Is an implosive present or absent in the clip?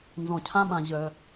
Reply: present